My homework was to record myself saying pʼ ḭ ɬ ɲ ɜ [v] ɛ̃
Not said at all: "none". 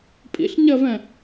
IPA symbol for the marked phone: v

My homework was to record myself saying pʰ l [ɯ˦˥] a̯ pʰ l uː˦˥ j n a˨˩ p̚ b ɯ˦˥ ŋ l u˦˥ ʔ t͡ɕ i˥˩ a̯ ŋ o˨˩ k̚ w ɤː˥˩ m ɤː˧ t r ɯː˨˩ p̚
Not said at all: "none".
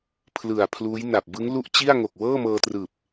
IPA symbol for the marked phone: ɯ˨˩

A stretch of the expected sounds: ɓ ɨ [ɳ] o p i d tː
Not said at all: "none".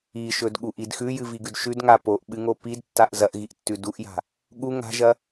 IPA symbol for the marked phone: ŋ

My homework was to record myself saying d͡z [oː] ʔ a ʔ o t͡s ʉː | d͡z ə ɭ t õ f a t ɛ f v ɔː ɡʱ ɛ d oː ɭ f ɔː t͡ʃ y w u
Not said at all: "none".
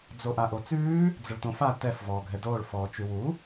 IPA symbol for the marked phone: o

